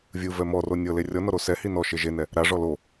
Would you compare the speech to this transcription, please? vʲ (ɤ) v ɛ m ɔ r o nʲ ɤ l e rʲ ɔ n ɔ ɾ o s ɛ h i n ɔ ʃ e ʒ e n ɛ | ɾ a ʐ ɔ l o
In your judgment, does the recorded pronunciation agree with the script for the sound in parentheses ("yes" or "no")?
no